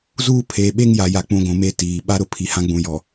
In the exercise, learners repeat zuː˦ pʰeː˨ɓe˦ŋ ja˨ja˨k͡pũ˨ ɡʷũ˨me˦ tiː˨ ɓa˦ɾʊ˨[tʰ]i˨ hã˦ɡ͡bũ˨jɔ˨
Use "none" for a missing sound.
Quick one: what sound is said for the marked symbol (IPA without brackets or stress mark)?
pʰ